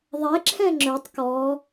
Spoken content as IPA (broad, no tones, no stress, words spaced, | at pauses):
ðˤɛǁʰɛ̃ ŋ͡ǁɵtˤ kɔ